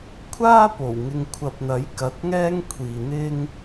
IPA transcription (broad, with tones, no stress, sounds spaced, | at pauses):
kʷʰ aː˥ p o˨˩ w ŋ ɪ˨ ŋ kʷʰ ɐ˨ p̚ n̪ ɐ˨˥ j k ɐ˨˥ t̚ ŋ ɛː˥ ŋ kʷʰ iː˨ n̪ ɪ˥ ŋ